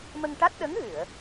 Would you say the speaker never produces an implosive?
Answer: no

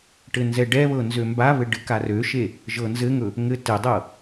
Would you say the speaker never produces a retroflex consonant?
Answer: no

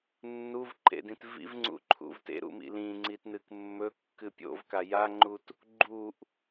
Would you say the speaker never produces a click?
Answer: no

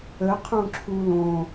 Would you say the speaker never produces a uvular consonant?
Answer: no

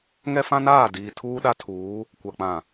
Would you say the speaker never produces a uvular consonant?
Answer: yes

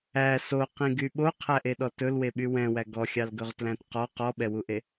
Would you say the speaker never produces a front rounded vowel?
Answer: no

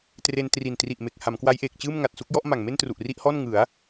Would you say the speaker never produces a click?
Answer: yes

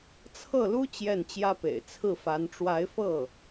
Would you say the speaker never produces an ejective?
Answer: yes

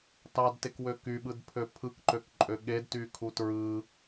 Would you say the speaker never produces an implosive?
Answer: no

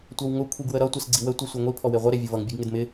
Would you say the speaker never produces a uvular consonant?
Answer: no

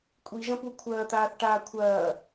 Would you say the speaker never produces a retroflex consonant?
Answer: no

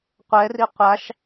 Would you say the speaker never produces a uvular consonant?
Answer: no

